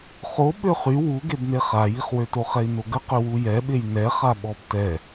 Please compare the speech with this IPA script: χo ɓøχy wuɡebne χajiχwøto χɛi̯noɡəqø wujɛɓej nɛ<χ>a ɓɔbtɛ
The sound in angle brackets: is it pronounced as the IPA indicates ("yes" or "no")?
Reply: yes